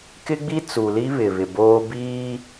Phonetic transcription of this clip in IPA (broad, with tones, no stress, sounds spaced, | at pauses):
k ɪ˦ ɡ͡b i˦ t͡s u˨ l i˦ β ɪ˨ β ɪ˨ b oː˦ b iː˦